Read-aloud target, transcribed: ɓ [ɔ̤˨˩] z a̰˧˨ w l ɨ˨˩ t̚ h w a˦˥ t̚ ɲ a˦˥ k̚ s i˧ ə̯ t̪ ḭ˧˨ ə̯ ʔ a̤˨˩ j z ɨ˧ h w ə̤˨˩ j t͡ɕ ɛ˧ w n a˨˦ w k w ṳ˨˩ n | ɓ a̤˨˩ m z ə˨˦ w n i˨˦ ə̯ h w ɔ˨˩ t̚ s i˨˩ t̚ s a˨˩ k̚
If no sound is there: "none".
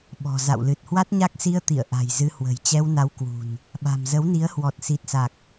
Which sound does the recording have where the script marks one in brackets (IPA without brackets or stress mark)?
ɔ̤˨˩